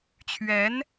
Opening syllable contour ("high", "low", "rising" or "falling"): rising